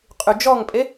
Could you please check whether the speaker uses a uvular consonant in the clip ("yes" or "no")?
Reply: yes